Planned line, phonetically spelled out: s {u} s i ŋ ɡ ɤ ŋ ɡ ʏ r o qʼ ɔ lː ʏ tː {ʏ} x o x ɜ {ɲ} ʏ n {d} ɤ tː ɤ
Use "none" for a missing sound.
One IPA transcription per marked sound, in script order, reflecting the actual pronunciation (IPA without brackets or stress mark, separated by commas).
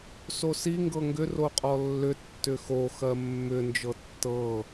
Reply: o, ʏ, mː, d͡ʒ